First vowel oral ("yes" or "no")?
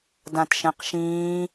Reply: no